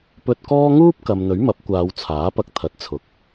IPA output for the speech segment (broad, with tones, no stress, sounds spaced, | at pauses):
p ɵ˧ t̚ k ɔː˥ ŋ uː˥ p̚ k ɐ˨ m n̪ ɵ˨˥ ɥ m ɐ˨˥ p̚ kʷ aː˨˧ w t͡sʰ aː˨˥ p ɐ˧ k̚ t̪ʰ ɐ˨˥ t̚ t͡sʰ ʊ˨ k̚